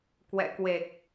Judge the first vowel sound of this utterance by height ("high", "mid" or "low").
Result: mid